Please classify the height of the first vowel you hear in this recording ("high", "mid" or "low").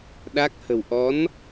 low